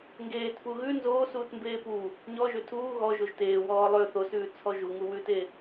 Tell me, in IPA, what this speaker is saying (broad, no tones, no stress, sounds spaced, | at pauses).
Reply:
ŋ ɡ eː t f u ɣ ʉ n z oː s uː t m b eː p u | ɲ ɔ ʒ ø tʰ uː ɣ ɔ ʒ o ʒ t eː w ɔː lˠ ø θ o s ʉː t͡sʰ ɔ ʒ u ŋ u w ʉː t e